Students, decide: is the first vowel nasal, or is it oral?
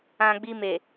nasal